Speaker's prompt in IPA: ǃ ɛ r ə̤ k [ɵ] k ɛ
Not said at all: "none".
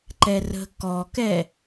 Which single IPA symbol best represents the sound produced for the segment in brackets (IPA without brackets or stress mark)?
ɔ